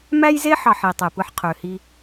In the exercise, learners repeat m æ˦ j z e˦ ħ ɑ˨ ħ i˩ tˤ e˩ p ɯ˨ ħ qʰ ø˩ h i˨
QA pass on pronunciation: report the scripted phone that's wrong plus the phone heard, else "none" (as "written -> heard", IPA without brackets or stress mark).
none